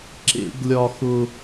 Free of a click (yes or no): no